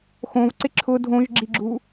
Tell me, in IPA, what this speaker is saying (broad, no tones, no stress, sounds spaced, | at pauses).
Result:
x õ v ǀ ɪ ǁʰ ʊ dʱ õ ʒ ɡ͡ǁ i ɡ͡ǁ u